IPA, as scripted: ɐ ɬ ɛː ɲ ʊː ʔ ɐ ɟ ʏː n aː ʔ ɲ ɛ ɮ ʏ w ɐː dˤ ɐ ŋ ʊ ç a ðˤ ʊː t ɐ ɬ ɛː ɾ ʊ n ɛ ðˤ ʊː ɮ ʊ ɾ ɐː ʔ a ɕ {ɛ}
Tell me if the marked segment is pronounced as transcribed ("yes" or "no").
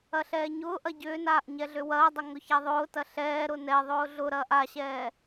no